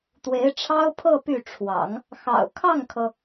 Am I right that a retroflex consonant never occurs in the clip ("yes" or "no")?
no